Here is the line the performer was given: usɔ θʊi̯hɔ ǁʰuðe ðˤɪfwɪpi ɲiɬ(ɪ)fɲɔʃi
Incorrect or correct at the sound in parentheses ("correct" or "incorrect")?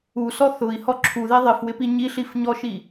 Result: incorrect